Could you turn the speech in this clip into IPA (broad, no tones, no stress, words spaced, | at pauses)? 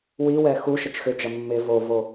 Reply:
wiwɛ xu ʃət͡ʃxʏd͡ʒɐ mːɪ vovo